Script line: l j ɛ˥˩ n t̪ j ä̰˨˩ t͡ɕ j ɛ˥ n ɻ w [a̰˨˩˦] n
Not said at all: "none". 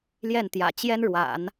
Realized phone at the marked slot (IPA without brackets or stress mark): a̰˨˩˦